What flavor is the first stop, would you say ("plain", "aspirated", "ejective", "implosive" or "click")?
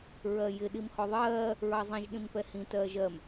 implosive